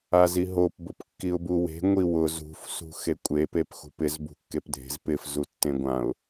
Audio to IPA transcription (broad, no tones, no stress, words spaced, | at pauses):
aziɦop bʊpkːiʊ̯buwe̤ ŋʷiwʊz ṳf sṳxekʷʼe pepxṳpɪz bṳkːepdʱe̤z pɪf zutːẽɡʷãʊ̯